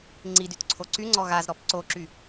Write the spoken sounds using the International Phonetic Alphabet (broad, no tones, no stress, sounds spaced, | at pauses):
ŋ͡ǀ i d y t ǀʰ o ǀ y ŋ͡ǀ ɔ ɣ a z ɾ ɔ p ǀ o ǁ y